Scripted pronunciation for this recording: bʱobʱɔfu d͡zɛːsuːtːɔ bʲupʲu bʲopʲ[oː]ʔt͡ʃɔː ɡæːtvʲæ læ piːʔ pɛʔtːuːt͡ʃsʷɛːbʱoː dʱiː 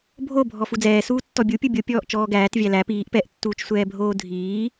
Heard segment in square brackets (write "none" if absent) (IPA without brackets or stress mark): ɔː